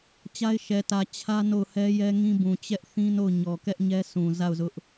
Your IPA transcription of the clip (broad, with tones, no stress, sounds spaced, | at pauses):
t͡ɕ a˦ ɪ̯ ʃ ɛ˨ t ä˨ t͡ɕʰ ä˦ n o˦˨ ʊ̯ h ɛ˦ j ɛ˦ ŋ ĩ˦ b ũ˨ t͡ɕ ɛ˦ ʔ θ ĩ˦ n o˦˨ ʊ̯ ɲ ɔ˨ k ɛ˦ ʔ ɲ ɛ˦ s ũ˨ z a˦˨ ʊ̯ z ʊ˦ ʔ